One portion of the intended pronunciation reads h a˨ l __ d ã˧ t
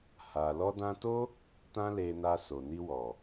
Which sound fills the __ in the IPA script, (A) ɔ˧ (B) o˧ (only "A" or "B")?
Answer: A